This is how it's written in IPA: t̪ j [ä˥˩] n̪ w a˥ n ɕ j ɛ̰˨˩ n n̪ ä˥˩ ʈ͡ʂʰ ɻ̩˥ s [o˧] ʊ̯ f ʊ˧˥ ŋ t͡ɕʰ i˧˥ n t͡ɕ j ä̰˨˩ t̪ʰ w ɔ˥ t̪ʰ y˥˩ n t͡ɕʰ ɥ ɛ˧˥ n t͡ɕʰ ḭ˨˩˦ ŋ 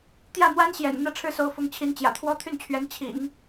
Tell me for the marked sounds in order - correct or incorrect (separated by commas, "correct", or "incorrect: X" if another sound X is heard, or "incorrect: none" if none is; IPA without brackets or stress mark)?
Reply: correct, incorrect: o˧˥